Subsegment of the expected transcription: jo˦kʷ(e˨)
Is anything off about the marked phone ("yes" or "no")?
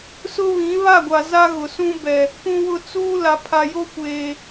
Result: yes